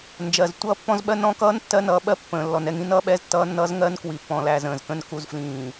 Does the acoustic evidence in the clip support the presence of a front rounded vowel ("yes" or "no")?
no